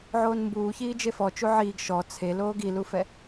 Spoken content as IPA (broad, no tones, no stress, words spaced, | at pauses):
ʕoːnmbuːçiː d͡ʒefɔ t͡ʃuʕiːɡ ʃɔ t͡sʰe loːɡilufɛ